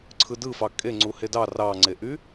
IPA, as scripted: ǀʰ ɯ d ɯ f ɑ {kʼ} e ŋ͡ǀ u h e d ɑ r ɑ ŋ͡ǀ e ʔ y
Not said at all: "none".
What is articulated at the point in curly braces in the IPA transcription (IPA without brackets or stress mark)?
kʼ